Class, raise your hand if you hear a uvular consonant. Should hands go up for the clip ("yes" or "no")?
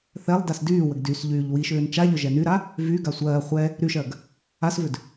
yes